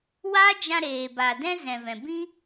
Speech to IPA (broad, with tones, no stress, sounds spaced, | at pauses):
w a˦ d͡ʒ ã˧ ɾ eː˨ b a˨ d ɛ̃˦ z ɛ̃˨ v ɛ̃˨ b ĩ˦